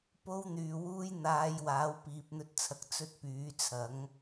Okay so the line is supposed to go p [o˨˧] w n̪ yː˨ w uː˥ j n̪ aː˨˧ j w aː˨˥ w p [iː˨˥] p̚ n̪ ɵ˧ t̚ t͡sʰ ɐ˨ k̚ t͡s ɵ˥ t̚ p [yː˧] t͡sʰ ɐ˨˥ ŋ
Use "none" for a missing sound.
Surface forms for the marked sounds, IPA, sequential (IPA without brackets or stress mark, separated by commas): o˥, iː˨, yː˨˥